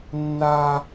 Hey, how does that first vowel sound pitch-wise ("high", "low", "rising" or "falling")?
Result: high